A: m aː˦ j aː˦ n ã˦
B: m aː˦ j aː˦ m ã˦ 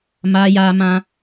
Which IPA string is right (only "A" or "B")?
B